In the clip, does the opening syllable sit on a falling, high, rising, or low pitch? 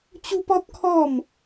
high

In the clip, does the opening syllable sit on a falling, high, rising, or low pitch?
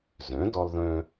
rising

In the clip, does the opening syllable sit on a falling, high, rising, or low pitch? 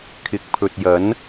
low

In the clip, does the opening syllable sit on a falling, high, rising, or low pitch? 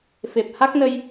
low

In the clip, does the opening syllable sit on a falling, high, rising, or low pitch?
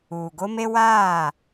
low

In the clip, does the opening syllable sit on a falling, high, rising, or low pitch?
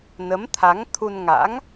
rising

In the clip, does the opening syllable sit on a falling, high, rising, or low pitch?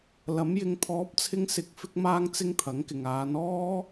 rising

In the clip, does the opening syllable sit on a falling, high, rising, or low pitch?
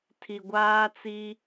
low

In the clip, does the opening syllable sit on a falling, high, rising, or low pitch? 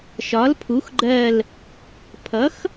rising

